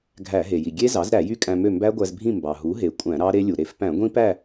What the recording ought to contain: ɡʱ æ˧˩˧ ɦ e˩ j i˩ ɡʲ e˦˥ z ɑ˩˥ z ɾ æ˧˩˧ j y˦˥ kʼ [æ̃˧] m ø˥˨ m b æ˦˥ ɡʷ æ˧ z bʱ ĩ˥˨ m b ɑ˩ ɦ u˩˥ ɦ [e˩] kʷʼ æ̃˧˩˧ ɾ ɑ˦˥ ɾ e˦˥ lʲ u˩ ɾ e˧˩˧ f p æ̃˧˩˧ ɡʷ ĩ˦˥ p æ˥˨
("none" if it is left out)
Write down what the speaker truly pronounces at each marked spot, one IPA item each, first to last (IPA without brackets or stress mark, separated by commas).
æ̃˧, e˩